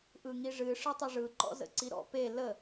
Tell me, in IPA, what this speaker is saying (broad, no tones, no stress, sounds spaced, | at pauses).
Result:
ʔ ɯ ŋ i ʐ ɨ ʂ ɨ tˤ ʊ ʐ ɯ ǃ ɔ̰ z ə̰ ǀ i ɾ ɔ̰ p e l ə